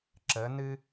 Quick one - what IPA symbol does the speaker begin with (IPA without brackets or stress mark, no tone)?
ǁ